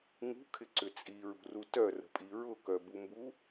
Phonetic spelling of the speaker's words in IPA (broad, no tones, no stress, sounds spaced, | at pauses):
ŋ ṳ kʰ ɪ ǀ ʏ t͡sʼ i ɹ ṳ r u t œ r ə̤ pʼ i ɹ ʊ k œ b u m b u